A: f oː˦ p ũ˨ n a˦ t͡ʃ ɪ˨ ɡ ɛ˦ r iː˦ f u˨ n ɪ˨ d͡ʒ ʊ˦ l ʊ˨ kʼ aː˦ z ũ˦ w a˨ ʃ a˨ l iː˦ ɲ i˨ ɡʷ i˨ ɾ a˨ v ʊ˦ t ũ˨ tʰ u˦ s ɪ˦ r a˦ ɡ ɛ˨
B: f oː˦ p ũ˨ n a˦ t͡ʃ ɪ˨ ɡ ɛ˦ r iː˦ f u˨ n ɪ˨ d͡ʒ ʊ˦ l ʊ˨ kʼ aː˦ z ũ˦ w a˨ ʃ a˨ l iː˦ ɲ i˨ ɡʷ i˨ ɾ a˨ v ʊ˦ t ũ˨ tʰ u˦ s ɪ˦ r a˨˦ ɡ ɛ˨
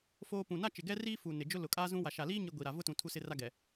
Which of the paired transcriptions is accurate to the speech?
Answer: A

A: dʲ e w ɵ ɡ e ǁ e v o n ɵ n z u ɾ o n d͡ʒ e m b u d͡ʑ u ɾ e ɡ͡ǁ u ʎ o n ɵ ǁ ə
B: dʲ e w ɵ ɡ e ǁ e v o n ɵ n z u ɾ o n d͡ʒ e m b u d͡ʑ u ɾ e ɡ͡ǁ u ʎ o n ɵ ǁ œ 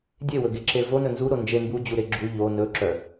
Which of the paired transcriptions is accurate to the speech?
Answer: B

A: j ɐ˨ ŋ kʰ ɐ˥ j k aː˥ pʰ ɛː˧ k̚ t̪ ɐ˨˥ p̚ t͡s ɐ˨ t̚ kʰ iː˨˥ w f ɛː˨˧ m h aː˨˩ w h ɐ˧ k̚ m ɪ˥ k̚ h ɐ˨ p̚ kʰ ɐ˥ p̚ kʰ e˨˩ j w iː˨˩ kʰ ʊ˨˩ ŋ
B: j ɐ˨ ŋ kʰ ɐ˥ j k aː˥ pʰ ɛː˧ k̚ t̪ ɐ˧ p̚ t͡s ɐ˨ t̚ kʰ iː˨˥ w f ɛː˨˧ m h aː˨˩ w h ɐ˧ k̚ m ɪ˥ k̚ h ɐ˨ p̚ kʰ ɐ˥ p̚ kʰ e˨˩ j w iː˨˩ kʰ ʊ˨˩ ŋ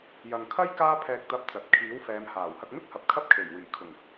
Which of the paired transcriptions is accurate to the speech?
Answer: B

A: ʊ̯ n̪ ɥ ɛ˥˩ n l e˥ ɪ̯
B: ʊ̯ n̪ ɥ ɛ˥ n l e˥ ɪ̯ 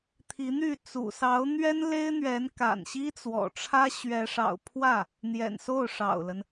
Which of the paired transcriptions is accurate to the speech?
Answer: B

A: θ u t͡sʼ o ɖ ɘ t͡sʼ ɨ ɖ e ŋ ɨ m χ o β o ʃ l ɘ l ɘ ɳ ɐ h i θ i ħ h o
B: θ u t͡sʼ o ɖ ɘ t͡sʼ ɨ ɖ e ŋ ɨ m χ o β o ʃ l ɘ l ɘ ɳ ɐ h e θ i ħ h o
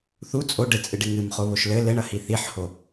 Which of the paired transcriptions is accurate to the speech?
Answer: A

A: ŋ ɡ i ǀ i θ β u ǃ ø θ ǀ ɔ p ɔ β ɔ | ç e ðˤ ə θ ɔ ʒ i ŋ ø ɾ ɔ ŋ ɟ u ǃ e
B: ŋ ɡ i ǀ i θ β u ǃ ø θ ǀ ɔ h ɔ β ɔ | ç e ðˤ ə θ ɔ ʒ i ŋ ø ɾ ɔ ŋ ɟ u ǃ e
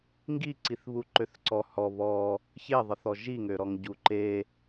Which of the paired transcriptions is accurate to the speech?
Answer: B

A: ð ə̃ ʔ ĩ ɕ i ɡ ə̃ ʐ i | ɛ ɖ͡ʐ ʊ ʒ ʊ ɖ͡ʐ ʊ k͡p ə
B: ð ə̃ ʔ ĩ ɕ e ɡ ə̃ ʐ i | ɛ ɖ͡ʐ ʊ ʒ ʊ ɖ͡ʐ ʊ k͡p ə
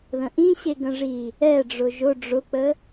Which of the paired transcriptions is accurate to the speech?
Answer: B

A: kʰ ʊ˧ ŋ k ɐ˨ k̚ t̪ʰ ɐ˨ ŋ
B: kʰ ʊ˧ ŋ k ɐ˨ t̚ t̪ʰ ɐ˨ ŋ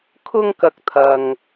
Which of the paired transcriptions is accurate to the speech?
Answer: A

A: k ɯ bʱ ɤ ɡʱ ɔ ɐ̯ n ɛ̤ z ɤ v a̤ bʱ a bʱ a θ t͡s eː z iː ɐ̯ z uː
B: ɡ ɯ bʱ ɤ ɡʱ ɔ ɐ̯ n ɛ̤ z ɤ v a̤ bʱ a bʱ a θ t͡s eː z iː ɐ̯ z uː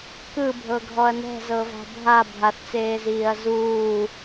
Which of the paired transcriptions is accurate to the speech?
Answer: A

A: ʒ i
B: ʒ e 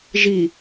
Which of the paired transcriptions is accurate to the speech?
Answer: A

